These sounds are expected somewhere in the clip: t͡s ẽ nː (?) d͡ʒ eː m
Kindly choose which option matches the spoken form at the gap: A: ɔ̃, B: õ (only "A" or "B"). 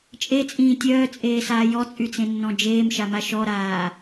A